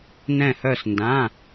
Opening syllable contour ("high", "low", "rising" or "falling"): falling